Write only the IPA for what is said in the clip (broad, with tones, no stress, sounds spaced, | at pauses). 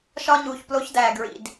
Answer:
ʃ ɒ˦ ɲ uː˨ ç p l o˦ ç d æː˨ ɡ ɹ ḭ˨ d